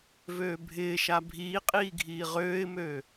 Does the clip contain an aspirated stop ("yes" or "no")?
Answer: no